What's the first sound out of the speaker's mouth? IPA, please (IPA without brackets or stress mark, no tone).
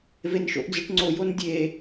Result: v